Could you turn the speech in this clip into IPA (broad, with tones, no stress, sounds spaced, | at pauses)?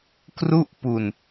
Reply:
k r u˥˩ ʔ p u˧ n